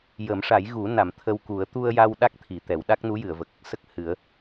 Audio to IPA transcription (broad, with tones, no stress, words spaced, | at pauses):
jə˨˩˦mʂa˨˩˦j ɣu˨˩˦na˨˩˨m t̪ʰə˧wku˨˩˦ə̯ t̪u˧ə̯ja˧w ɗa˦˥k̚t̪ʰi˨˩˨t̪ɛ˨˩˨w ɗa˦˥k̚nu˧˥jɨ˨˩˨ə̯və˨˩k̚ | sə˦˥k̚hɨ˨˩˦ə̯